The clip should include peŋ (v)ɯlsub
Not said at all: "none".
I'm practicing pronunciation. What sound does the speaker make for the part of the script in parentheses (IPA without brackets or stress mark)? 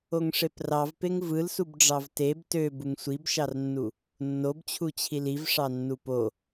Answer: v